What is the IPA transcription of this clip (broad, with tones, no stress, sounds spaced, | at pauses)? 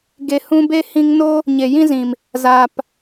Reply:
ɡ e˨ h ũ˧ b e˦ h ĩ˧ ŋ n o˦ | ɲ e˨ j ĩ˦ z ĩ˨ m | z aː˨ p